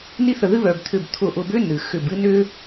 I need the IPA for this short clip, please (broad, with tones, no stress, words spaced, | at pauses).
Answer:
ni˥θə˧˩ðɨ˥βœ˩b t̪ʰʏ˧˩bt̪ʰʊ˧˩ʔʊ˧˩bʏ˥ nɨ˩xʏ˧˩b ɨ˥nʏ˥